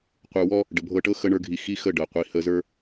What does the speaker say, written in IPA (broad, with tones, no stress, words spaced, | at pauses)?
qʷə˞˧wɔ˦ | ɖə˨bʱɤ˧ʈɤ˦ xə˧ɳə˞˧ɡʱi˨ xi˦xə˦˨ ɖɤ˨qʷi˨ hə˧zə˞˦